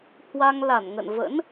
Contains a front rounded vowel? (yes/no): no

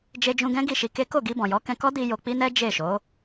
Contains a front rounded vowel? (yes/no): no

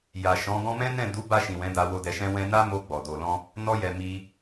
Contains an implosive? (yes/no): no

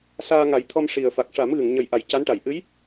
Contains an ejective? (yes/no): no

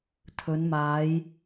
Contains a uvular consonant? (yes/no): no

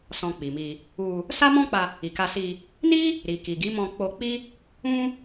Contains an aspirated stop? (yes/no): no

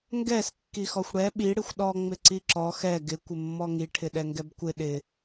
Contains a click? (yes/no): yes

